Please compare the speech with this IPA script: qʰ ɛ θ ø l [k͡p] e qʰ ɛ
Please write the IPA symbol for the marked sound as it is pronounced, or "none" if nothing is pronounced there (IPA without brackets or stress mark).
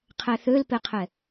p